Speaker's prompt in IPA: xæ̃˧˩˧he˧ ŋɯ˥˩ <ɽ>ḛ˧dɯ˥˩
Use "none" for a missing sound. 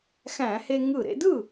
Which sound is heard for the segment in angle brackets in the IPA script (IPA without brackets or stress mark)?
ɾ